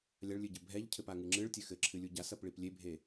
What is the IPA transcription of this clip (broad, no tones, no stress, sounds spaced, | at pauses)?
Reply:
lʲ a ɭ lʲ ɨ ɟ ɘ bʱ ɛ ʎ cʰ ɘ p a ŋ ɨ ŋ͡ǁ ɨ ɭ tʲ ɘ x ɘ ǁʰ ɨ lʲ u ɟ a s ɐ p ɭ i p lʲ e bʱ e